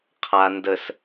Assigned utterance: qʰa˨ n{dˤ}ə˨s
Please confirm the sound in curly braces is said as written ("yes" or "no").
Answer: no